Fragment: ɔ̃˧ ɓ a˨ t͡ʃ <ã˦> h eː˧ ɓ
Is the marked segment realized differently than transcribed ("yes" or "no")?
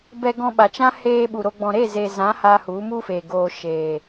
no